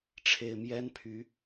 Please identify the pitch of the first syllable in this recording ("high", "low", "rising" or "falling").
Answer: low